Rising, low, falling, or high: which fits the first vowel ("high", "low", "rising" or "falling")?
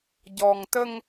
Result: low